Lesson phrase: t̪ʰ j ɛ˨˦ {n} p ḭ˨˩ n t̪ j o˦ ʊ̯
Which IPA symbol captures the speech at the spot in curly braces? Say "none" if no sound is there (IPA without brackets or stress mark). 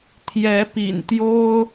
none